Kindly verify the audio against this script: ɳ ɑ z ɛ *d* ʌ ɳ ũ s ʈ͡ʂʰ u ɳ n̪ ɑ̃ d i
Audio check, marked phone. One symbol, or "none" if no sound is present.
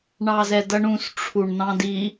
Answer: d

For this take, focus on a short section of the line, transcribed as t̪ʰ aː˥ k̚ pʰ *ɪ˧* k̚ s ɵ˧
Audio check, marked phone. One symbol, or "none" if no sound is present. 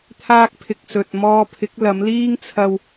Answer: ɪ˧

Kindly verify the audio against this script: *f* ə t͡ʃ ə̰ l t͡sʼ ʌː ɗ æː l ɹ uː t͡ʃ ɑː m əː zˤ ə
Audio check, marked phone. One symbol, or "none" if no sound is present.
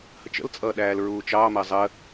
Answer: h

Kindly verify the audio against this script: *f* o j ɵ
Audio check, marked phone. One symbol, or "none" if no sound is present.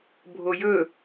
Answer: bʱ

